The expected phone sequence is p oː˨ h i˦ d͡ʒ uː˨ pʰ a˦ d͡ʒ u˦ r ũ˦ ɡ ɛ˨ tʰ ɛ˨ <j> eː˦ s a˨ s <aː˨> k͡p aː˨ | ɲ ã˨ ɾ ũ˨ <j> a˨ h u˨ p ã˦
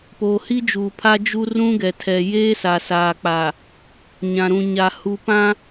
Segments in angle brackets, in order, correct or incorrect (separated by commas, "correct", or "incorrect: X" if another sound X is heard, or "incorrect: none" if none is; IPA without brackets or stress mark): correct, correct, incorrect: ɲ